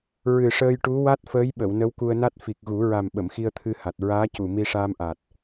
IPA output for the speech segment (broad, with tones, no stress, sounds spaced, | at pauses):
ɹ ɨ˨˩ ʂ əː˧ j ʈ u˧˥ w a˦˥ t̚ f əː˧˥ j ɓ ə˨˩˨ w n ə˧˥ w k u˧ ə̯ n a˦˥ t̚ f i˨˩ k̚ ɣ u˨˩˦ ɹ a˨˩ m ɓ ə˨˩˨ m x i˧ ə̯ t̪ʰ ɨ˧ h a˨˩ t̚ ɹ aː˧˥ c u˨˩ m i˧ ʂ aː˧ m ʔ aː˨˩ t̚